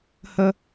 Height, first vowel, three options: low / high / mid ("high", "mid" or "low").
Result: mid